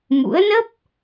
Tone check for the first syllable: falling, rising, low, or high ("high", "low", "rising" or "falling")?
rising